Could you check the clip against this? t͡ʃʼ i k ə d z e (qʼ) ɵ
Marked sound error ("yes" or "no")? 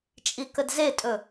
yes